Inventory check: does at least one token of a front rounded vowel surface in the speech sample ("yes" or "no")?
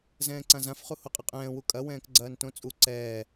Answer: no